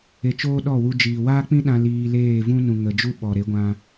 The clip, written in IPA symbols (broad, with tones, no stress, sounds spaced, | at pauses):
e˧ t͡ʃ oː˦ ɗ ɔ˦˨ w u˧ d͡ʒ iː˨ w aː˦ k͡p ĩ˦ ɗ ã˧ l iː˧ l eː˦˨ v ũ˦ n ũ˨ ŋ ə˨ d͡ʒ u˦ ɓ ɔ˨ ɾ e˨˦ ɡʷ ã˧